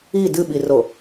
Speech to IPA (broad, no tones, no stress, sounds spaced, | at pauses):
i d ɨ ɓ i r o